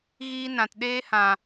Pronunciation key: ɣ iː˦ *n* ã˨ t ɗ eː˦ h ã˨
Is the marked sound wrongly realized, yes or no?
no